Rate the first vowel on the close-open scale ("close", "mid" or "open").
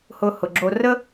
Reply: close